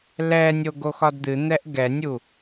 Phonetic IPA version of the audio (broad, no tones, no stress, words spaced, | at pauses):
lɛnʲo ɡoxɒdd̪ɨn̪ɛʔ ɡɛnʲu